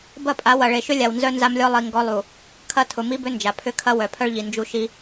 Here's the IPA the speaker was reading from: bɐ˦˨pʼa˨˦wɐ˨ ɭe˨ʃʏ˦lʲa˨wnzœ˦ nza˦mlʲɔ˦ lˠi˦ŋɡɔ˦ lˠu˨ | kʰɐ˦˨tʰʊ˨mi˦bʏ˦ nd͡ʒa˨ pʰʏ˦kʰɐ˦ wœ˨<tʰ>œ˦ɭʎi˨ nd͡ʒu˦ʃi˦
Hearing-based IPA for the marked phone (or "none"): pʰ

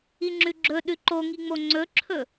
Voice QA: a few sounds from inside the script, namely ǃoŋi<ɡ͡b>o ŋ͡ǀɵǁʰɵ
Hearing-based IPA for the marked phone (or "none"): ŋ͡m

